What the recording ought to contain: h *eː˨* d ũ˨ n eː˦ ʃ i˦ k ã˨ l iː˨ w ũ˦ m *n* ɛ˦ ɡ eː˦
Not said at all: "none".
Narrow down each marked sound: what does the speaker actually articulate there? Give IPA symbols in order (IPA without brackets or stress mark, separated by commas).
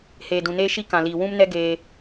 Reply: eː˨, n